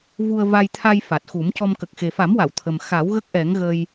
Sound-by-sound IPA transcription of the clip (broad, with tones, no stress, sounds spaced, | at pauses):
v u˧ ə̯ v a˧ j t̪ʰ a˧ j f a˨˩ t̚ x u˨˩˦ m c ɔ˧ m k ə˨˩ k̚ x e˨˩ f a˨˩˦ m w a˨˩˨ w t̪ʰ ə˨˩ m x a˨˩˦ w ɣ ə˦˥ k̚ ʔ ɛ˨˩˦ ŋ ɣ ə˧ j